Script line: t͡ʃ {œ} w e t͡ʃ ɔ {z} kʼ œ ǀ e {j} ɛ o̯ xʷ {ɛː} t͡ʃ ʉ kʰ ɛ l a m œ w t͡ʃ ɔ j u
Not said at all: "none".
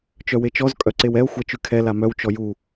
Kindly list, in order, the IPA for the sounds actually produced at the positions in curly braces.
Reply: œ, z, w, ɛ

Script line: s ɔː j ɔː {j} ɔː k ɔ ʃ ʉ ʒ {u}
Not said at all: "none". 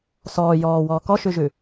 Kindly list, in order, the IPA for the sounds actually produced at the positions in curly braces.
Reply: w, ʉ

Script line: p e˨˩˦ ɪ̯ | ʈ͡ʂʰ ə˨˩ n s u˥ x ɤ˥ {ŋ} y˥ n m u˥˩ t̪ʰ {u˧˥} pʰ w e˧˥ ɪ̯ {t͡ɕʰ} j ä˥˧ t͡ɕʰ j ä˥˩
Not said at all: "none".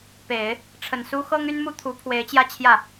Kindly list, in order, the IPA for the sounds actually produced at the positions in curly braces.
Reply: ŋ, u˧˥, t͡ɕ

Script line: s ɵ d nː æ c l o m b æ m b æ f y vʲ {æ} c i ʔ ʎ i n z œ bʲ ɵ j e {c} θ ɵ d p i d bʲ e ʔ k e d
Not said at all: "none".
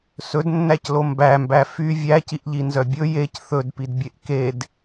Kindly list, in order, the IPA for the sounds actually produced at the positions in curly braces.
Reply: æ, c

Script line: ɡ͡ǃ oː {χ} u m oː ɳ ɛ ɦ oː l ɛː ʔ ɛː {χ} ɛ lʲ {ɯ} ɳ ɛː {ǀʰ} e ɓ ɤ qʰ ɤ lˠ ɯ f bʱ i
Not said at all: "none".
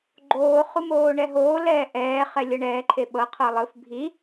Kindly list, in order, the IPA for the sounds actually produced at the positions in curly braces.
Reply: χ, χ, ɤ, ǃʰ

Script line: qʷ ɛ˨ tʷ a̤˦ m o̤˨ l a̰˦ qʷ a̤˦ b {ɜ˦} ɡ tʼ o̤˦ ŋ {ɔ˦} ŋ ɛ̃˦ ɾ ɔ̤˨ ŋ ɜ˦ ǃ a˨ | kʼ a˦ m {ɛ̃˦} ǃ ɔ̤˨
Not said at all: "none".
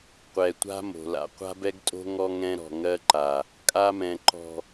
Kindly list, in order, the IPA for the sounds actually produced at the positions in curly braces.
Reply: ɛ˦, ɔ˦, ɛ̃˨

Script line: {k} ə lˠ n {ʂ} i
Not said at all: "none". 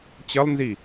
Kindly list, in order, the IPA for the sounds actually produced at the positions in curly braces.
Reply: t͡ɕ, z

